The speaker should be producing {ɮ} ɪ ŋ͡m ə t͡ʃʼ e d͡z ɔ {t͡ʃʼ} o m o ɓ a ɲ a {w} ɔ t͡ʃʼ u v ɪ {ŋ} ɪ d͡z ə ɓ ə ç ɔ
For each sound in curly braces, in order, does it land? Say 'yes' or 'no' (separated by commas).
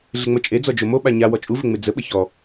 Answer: yes, no, yes, no